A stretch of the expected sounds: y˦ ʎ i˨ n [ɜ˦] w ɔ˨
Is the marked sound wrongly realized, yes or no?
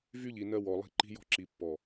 no